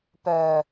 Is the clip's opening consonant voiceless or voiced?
voiceless